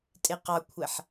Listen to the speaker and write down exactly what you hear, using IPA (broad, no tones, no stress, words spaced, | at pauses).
tʼɪqɑkʷʰɛħ